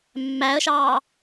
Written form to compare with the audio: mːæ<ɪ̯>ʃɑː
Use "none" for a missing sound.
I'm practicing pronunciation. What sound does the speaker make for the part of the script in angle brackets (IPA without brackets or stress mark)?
ə̯